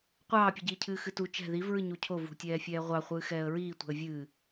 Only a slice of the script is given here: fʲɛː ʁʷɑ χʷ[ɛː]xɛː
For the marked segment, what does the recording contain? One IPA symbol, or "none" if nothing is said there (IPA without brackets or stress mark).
ɨː